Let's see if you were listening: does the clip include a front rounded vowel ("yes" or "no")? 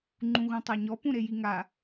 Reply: no